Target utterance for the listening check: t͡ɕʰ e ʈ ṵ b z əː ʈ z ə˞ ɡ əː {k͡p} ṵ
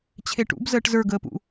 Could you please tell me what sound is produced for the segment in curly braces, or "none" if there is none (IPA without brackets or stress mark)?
p